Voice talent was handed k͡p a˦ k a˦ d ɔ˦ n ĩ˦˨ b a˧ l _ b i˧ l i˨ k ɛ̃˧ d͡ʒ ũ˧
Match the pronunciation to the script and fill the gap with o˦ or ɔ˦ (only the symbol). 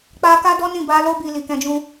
o˦